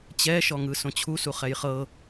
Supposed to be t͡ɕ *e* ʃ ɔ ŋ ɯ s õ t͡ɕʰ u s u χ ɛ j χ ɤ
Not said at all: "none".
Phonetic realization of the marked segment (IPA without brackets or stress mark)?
ɛ